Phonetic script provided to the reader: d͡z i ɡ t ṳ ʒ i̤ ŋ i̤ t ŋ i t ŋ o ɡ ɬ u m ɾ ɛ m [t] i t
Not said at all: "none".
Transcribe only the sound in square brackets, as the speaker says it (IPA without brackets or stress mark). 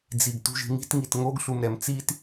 t͡s